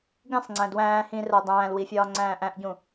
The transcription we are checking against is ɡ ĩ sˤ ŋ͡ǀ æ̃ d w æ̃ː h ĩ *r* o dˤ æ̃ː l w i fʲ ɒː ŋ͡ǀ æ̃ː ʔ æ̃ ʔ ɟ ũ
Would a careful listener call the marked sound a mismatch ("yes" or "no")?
no